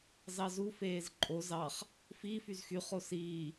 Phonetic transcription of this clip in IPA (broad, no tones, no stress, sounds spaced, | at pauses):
z ɑ z u f eː z ǃʼ o z ɑ χ | f i f y z x y χ o s iː